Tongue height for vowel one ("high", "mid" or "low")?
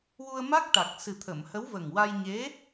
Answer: high